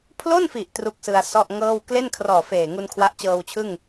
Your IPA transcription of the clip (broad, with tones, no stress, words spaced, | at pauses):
pʰlo˥˩nfi˨˩ʔ tru˥˩k̚sɯ˧a̯ sɔ˥˩ʔŋɤː˥˩w kle˥˩nkʰrɔː˨˩ feː˨˩ŋu˧n kʰwa˦˥ʔt͡ɕɤː˧wt͡ɕʰɯ˥˩ŋ